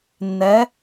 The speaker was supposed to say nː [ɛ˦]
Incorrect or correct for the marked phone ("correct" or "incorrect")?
incorrect